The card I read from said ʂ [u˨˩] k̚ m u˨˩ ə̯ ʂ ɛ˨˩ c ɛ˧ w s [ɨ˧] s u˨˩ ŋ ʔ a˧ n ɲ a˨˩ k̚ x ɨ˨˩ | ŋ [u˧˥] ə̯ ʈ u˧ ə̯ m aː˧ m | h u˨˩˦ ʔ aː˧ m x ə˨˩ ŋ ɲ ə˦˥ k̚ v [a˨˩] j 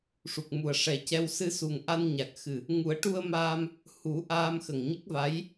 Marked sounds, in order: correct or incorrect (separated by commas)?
correct, correct, incorrect, incorrect